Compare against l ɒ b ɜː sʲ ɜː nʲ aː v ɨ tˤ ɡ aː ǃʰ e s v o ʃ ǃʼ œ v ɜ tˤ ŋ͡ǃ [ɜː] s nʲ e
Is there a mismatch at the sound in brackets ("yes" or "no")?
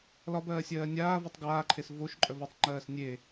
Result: no